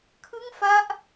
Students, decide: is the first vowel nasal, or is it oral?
oral